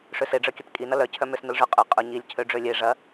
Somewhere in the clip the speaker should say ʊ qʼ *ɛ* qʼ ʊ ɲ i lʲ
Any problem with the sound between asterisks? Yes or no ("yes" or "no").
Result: yes